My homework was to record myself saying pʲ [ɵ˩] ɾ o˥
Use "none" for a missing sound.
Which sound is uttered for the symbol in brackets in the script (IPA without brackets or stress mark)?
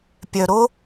œ˩